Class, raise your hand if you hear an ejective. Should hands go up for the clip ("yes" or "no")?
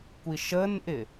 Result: no